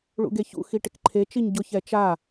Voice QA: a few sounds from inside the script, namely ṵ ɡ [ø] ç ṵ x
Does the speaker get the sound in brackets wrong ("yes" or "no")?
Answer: yes